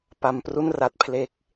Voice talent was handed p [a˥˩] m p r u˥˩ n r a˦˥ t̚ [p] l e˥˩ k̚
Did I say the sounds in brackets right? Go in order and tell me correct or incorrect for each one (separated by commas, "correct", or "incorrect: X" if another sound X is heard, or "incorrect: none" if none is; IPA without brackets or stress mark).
incorrect: a˧, incorrect: pʰ